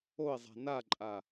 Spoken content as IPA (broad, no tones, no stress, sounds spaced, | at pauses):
o i̯ zˤ a̤ n a ǃʼ a